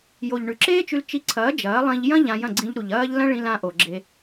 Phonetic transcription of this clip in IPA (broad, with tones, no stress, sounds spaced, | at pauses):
j o˨ ʎ ɳ ʉ˨ ǁ eː˦ t͡ʃ ʉ˧ l t͡ʃ i˧ ǀʰ ɐː˨˦ d͡ʒ ɐː˨˦ lˠ ĩ˧ ʎ j ɐ̃˦ ʎ ã˧ j ɐ̃˦˨ ɡ͡ǀ ĩ˧ ʎ ɾ u˨ ʎ ɐː˦ ʎ l ɐ̃˦ ɭ ĩ˧ l ã˧ ʔ o˨ ɡ͡ǁ e˧